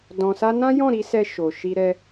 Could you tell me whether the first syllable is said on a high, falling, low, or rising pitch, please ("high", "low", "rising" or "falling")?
low